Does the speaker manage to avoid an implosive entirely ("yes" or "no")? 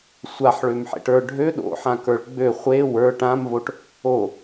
no